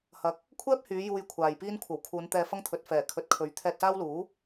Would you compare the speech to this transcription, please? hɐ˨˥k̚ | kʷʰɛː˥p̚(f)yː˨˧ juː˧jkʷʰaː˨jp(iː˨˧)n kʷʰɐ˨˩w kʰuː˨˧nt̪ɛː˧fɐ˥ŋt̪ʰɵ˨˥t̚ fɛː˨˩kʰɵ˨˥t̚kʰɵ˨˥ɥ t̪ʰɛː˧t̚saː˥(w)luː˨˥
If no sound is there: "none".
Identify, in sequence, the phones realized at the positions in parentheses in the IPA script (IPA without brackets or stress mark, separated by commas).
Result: h, iː˥, w